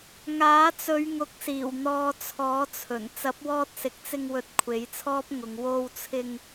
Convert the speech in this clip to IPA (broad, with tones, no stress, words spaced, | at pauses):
ŋaː˨˥t͡sɵ˨˧ɥ ŋʊ˨˥k̚siː˨˩w n̪ɔː˧t͡sʰɔː˨˥t͡sʰɵ˨˩n t͡sɐ˨˥p̚wɔː˧t̚sɪ˨k̚t͡sɪ˧ŋ wɵ˧t̚kʷʰe˨˥jt͡sʰɔː˥p̚ŋʊ˨˧ŋ wo˧wt͡sʰɪ˧ŋ